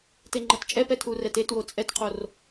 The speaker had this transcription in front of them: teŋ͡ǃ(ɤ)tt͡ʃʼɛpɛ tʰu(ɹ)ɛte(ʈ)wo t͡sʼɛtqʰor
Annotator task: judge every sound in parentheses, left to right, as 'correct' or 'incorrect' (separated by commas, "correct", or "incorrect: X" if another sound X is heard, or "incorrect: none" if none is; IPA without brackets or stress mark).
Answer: correct, incorrect: r, incorrect: t